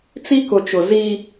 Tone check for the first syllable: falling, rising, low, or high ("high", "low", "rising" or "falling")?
high